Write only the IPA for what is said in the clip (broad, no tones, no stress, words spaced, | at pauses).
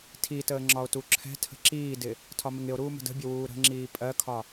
tʰitəː ŋ͡ǁɒo̯tuǁʰɛ̤tʰə̤ ǁiːdɪ | tʰɒmɪŋɪo̯ɾuː mə̤də̤bʲə wuːɾə̤ŋ͡ǁiː pʼɜkʰɒ